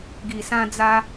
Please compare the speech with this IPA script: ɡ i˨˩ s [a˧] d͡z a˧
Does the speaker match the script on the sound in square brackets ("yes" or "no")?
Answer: no